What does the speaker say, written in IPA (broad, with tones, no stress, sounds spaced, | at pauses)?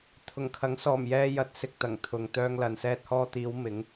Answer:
t̪ʰ ʊ˨˩ ŋ kʰ ɐ˨˥ ŋ s ɔː˨˩ m j ɛː˧ j ɐ˨˥ t̚ s ɪ˨ k̚ t̪ ɐ˨˩ ŋ t̪ʰ ʊ˨ ŋ t̪ œː˧ ŋ l ɐ˨ n s ɛː˧ t̚ h ɔː˧ t̪ iː˨˧ w m ɪ˨˥ ŋ